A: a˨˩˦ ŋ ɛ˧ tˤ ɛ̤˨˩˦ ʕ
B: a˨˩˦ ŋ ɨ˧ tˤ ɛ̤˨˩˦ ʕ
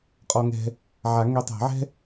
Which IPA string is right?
A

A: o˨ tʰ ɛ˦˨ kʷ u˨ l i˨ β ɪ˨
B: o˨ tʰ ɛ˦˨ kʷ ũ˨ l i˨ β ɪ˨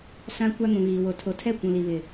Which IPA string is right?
B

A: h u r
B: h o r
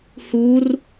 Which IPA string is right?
A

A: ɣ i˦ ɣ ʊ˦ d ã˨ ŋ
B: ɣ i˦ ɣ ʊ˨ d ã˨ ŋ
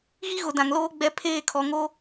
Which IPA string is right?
B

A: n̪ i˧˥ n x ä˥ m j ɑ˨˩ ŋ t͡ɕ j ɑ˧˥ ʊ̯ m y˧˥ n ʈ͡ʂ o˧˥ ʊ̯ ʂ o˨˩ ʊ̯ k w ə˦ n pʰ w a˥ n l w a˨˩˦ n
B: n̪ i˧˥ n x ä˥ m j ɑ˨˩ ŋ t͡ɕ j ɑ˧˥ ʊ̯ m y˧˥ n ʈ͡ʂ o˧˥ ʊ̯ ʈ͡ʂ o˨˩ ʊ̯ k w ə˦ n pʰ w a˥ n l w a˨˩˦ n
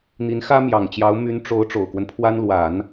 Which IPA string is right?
B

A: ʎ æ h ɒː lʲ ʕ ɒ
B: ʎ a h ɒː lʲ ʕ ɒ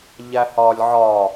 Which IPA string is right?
A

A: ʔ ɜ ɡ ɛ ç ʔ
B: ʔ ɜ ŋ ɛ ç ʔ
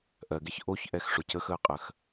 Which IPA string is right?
A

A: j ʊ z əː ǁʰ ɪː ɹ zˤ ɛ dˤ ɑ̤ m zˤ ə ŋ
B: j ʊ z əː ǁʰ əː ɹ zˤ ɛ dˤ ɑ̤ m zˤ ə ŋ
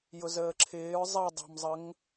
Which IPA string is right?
A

